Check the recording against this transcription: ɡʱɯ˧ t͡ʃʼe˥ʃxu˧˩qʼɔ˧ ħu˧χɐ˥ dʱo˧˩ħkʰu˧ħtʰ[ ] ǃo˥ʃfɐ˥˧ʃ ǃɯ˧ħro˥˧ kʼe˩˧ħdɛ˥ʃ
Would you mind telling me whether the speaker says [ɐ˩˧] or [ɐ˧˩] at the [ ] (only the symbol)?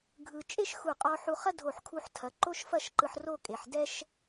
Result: ɐ˩˧